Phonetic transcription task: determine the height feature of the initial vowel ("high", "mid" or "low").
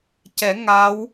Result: mid